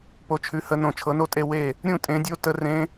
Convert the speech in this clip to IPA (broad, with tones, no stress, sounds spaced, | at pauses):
p o˨˦ t͡ʃʰ ʉ˨˦ h ə˨˦ n õ˧˩ t͡ʃʰ ɤ˨˦ n o˥˨ tʼ e˥˨ w e˥˨ | ɾʲ ũ˥˨ tʼ ẽ˨˦ dʲ o˦˥ t ə˦˥ r ẽ˦˥